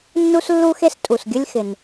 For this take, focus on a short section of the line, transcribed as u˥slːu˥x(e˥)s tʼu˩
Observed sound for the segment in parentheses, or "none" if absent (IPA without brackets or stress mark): e˥